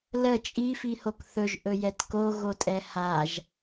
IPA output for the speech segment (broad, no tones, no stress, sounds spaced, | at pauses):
l ə t͡ʃʼ i f i h o k θ ɵ ʒ ʔ ɵ j ɛ t k o ɣ o tʼ ɛ h a ʒ